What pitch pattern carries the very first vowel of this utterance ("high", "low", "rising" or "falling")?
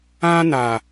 high